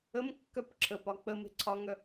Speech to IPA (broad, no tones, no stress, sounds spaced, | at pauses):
ə m kː œ p ǁʰ ə p ɒ k͡p ə m e̤ ǀʰ ɒ ŋ œ